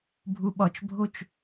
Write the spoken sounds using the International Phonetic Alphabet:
bʱ u ɓ ɒ t͡ʃ bʱ o t͡ʃ

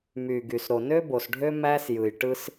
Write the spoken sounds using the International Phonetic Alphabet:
m y˨ ɡ y˨ s ɾ o˨ n ø˦ b o˨ s ɖʱ ø˦ m æ˦ s j ɯ˨ j ʈ ɯ˦ s

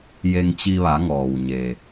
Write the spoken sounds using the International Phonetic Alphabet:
j e˧ ŋ t͡ɕ i˧ ʋ a˩˧ ŋ ɔː˩ w ɲ e˩

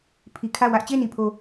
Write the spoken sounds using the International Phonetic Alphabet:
pʰ i˨ kʰ ä˦˨ w ä˦ ʔ t͡ɕ e˦˨ ɪ̯ n i˨ pʰ o˨

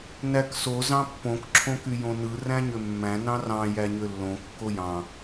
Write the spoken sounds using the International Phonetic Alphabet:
n æ k s o z ɑ̃ pː õ k ǁʰ õ k y j õ n ɯ r æ̃ ɲ ø mː æ̃ n ɑ̃ r ɑ̃ j æ ɲ ø lː õ kː o j ɑ̃

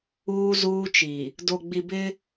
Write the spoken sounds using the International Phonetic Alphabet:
uː˦ z uː˦ t͡ʃ i˨ | d o˨ ɡ͡b i˨ b ɪ˦

